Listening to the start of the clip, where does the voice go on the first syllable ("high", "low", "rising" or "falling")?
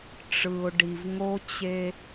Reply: low